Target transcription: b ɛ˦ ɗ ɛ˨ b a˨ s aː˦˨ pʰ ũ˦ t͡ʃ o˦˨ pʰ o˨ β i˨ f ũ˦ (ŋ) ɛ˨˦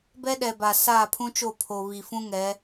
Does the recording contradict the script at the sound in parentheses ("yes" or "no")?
no